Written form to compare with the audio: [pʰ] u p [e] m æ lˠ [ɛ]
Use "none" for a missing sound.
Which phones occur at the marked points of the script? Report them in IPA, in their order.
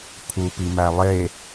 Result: pʰ, i, e

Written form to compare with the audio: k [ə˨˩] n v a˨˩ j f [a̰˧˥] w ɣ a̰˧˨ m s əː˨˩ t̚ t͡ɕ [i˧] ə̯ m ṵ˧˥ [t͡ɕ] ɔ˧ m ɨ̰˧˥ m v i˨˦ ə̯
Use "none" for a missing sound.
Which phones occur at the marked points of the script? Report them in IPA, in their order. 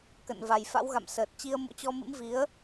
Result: ə̰˧˨, a̰˧˥, i˧, t͡ɕ

